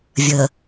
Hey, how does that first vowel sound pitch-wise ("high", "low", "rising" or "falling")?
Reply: low